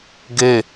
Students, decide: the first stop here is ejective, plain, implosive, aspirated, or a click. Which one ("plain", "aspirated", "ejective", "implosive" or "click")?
plain